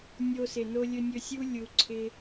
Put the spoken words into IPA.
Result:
nʲ o˧ s ɪ˨ n o˧ lʲ ɵ˧ nʲ ɵ˧ sʲ u˦ lʲ u˧ ǀʰ ɪ˦

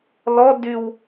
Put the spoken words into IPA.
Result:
l ɔ d y w

